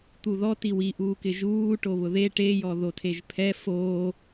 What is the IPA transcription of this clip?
t̪ u ð ɔ t i w i ʔ uː k ɪ ʒ uː ʈ o β ʊ ð e ʈ e j ɔ ð o tʰ e ʒ pʰ ɛ f oː

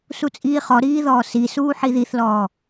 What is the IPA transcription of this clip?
s u t͡sʼ iː χ ɔ ɾ iː ð ɔː s i s uː ħ i ð i θ l ɔː

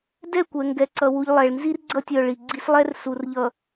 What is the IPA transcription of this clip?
d ɛ˦˨ kʷ ɛ˨ ŋ ɡ ɛ˨ ǀ ʌ˨ w u˨ ʎ lˠ ɛ˨ ɭ n z i˦ r ɡ͡ǀ ʌ˦˨ tʲ œ˨ ɭ i˨ ɡ͡ǀ i˦ s lˠ ɛ˦ r s u˨ r ʎ ʌ˨

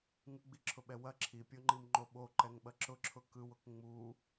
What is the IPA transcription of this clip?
ŋ ɯ ɡ͡b i ǁʰ ʊ ɓ ɛ w ɐ ǁʰ i pʲ o ŋ͡ǃ i m ŋ͡ǃ o ɓ o ǃ ɛ ŋ ɓ ɐ ǁ ʊ ǁʰ ʊ k ɯ w ʊ k ŋ͡m u

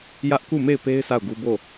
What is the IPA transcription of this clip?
j ä˦ ʔ k u˦˨ m e˦˨ ɪ̯ p e˦ ɪ̯ s a˦˨ ʊ̯ ɡ u˦ b o˦˨

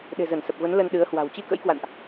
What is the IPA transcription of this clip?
ɗ e̤˨˩ z ə˧˩ n s ə˨˩ p̚ v ə˨˦ n l ə˧ n ɗ ɨ˨˦ ə̯ h w a̤˨˩ w t͡ɕ i˧ k ə̰˧˥ j k w a̰˧˨ n ʔ

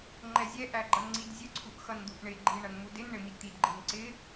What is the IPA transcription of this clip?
ŋ͡ǃ ɛ zʲ ɛ ʔ æ ɡ͡ǃ ʌ n ŋ͡ǀ i d zʲ ə ǀʰ u ʔ x ʌ n d̪ u ʔ ɳ ɪ ɡ͡ǃ i ɳ ʌ n m u d ɪ n ɳ ɪ m i d t̪ i d ɡ͡ǃ i n ǀ ɪ

